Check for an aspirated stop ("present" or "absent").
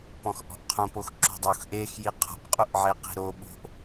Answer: present